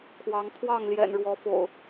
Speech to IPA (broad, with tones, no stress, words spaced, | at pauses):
kʰwɑ˨˦ŋ pʰwɑ˥˨ŋljɛ̰˨˩nɻwɔ˨˦fo̰˨˩ʊ̯